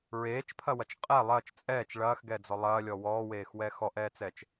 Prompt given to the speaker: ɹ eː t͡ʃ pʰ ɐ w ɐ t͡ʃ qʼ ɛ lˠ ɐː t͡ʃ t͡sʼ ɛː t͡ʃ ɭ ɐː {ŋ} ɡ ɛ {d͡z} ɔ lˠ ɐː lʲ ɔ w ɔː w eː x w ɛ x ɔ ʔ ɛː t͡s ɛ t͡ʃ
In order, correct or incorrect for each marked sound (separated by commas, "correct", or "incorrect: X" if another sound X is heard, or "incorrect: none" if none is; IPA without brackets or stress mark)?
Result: incorrect: x, correct